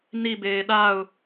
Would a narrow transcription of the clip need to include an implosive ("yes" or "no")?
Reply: yes